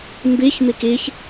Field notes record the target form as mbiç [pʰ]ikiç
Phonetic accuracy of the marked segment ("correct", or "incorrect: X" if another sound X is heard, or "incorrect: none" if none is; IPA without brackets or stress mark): incorrect: m